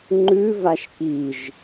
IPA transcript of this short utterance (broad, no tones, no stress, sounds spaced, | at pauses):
ŋ͡ǃ ʉ v a ʃ k i ʒ